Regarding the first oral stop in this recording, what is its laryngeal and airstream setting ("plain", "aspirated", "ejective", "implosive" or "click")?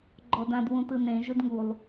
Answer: click